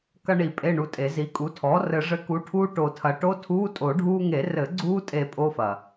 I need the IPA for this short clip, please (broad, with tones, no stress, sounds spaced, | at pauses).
k ɐ˧ ɳ i˨˩˦ pʼ e˧˥˧ ɳ u˧ tʼ e˨˩˦ z i˩˥ kʼ u˩˥ tʰ ɔː˩˥ r ɘ˨˩˦ ʐ ɘ˩˥ k u˩˥ ʈʰ uː˧ ʈ o˨˩˦ tʰ ɐ˩˥ ʈ o˧˥˧ tʰ uː˧˥˧ tʼ o˨˩˦ ɖʱ uː˧ ŋ e˨˩˦ r ɘ˨˩˦ ɡ͡ǀ uː˧ tʼ e˨˩˦ pʼ o˧˥˧ f ɐ˩